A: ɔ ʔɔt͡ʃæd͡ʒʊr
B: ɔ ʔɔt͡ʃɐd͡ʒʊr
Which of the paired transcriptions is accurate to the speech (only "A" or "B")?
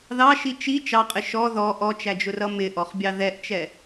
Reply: A